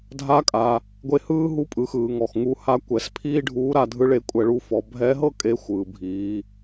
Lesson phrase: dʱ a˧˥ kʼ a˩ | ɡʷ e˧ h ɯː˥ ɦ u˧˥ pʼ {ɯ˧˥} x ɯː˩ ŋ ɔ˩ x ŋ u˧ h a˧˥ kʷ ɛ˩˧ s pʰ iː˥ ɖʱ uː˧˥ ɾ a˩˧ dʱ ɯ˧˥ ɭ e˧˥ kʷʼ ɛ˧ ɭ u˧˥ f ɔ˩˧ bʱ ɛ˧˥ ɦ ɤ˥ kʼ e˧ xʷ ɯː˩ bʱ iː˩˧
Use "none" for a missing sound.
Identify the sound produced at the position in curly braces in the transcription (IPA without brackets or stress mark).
ɯ˩˧